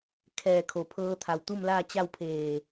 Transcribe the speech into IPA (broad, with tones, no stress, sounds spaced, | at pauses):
kʰ ɛː˧˩ kʰ o˩ pʰ ɤː˧ t̪ʰ a˩ w t̪ u˥˨ m l aː˥˨ t͡ɕ a˥˨ w pʰ eː˧˩